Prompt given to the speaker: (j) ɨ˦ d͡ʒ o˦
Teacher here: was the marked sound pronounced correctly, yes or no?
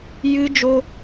yes